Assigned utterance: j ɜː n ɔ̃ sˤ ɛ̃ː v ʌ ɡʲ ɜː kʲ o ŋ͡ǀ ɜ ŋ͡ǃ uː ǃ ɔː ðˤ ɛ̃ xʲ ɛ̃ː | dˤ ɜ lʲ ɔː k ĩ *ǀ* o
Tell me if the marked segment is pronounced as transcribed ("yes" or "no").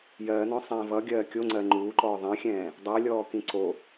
yes